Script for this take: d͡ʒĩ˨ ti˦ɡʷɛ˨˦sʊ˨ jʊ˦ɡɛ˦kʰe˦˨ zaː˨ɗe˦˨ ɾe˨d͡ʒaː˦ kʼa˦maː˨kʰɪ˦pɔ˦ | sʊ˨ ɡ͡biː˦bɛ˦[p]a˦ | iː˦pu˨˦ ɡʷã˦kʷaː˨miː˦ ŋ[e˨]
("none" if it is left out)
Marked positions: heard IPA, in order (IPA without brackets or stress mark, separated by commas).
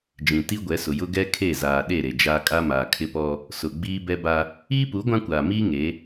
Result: b, e˨˦